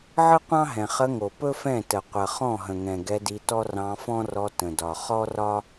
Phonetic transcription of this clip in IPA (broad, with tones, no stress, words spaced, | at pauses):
ʕɯ˦qʷɑ̃˦ɦɛ̃˨ χə˧ŋo˨ pɵ˦fɛ̃˦˨ tə˨ qʷə˨ χɔ̃˦˨ɦə̃˨ŋɛ̃˨ ɡɛ˧di˧tɔ˦ rɑ̃˧fɔ̃˦rɔ˧ tə̃˨dɒ˨ χɔ˦rɒ˦